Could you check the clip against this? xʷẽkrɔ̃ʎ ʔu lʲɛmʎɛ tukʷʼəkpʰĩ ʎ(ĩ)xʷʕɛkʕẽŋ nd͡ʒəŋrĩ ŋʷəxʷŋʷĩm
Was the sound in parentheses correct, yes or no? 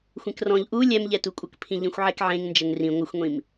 yes